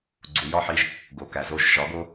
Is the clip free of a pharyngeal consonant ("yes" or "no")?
no